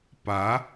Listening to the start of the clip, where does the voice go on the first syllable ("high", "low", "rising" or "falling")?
rising